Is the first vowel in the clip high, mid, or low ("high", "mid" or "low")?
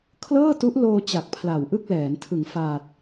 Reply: mid